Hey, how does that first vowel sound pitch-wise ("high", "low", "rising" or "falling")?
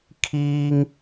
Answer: high